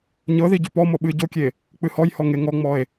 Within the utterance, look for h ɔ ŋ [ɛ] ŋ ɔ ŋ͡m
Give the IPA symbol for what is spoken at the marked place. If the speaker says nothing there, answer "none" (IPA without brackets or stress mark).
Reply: e